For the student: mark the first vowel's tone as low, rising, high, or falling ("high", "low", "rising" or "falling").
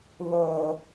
low